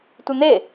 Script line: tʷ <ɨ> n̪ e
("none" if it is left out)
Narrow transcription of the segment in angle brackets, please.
ɨ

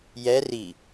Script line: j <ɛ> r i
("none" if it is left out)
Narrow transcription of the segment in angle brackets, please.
ɛ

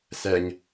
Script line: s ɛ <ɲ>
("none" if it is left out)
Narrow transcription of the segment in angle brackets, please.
ɲ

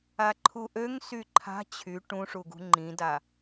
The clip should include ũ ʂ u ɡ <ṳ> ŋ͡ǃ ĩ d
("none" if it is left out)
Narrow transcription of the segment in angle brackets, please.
ṳ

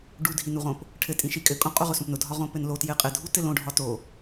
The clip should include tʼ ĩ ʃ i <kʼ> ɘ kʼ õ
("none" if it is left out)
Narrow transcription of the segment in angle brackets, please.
kʼ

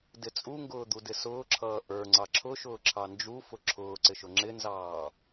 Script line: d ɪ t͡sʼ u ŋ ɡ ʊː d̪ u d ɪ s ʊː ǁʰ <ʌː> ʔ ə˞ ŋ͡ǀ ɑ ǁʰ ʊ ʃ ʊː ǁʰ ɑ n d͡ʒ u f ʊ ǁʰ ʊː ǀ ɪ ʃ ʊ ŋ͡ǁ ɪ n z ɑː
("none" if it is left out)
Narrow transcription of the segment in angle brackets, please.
ʌː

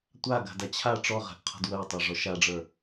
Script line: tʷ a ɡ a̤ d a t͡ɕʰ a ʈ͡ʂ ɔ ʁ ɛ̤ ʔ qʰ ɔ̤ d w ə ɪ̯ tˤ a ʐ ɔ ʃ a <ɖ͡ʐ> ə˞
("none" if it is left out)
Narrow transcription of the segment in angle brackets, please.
ɖ͡ʐ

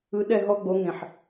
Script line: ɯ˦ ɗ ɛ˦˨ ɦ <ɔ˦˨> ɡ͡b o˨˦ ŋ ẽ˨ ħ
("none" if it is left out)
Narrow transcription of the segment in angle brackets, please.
ɔ˦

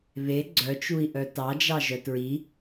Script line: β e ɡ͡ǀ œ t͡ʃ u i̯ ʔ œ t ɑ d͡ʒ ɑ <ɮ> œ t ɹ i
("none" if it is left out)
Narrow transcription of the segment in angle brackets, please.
ʒ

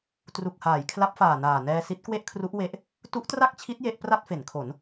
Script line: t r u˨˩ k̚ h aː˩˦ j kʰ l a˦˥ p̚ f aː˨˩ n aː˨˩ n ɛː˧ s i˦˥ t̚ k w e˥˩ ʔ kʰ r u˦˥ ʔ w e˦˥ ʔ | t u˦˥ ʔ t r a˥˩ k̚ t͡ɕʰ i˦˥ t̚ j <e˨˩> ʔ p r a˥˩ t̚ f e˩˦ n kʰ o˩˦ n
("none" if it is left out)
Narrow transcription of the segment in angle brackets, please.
e˦˥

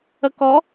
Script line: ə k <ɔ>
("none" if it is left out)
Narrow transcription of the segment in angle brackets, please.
ɔ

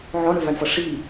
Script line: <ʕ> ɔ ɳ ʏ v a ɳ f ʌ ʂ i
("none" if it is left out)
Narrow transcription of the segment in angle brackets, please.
ʕ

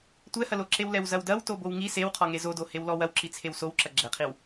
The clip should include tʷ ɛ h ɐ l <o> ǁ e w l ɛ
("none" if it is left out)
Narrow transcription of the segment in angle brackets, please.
o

